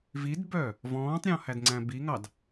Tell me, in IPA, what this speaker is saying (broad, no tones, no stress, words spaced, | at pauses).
vidbœ | vɔ̃ːtˤɾʲɔ̃hædŋ͡ǀæ̃ biŋɑd